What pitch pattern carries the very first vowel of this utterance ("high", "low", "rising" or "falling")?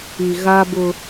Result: low